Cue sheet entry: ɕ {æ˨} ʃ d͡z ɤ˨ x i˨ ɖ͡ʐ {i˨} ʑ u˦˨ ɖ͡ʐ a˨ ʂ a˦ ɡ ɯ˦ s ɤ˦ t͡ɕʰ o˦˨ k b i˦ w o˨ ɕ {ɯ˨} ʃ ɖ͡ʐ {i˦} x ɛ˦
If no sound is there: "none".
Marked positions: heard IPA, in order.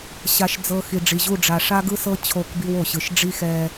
a˨, i˨, ɯ˨, i˦

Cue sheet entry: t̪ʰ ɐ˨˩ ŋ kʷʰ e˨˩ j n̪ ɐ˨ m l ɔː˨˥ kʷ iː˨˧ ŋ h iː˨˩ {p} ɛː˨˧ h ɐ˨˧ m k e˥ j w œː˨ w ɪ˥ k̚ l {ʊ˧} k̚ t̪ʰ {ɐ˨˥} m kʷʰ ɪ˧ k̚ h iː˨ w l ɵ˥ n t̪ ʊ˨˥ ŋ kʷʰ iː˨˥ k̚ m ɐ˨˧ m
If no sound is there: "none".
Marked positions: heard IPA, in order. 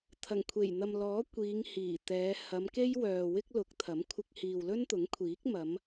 t̪, ʊ˨˥, ɐ˨˥

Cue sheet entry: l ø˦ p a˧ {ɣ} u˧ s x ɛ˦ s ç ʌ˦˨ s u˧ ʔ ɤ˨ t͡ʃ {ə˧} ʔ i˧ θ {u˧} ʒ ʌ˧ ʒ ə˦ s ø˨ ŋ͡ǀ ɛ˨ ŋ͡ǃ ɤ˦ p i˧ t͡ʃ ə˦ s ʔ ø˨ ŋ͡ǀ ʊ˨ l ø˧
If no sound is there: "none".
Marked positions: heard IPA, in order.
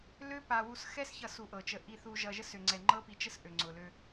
w, ə˧, u˧

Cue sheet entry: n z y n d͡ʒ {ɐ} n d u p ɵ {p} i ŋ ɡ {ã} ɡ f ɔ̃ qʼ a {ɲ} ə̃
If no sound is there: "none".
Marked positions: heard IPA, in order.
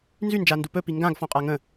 a, p, ã, ŋ

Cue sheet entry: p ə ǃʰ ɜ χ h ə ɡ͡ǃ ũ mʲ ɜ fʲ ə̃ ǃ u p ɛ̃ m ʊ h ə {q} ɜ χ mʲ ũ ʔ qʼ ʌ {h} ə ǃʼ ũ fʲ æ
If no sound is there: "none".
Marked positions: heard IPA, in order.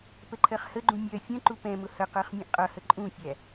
q, h

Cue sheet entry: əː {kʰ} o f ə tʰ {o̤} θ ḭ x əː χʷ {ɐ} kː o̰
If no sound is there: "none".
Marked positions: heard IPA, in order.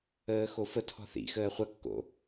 x, ɔ̤, ɐ

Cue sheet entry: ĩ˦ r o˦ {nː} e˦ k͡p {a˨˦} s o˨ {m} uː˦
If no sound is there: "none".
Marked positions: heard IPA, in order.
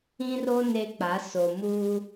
n, a˨˦, m

